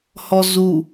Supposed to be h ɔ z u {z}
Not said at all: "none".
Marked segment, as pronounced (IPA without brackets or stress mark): none